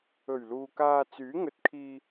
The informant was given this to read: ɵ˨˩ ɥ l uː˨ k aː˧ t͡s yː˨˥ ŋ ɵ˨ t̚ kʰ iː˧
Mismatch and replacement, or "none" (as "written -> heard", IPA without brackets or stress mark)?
none